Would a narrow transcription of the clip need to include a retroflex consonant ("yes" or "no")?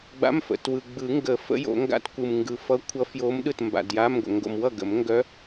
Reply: no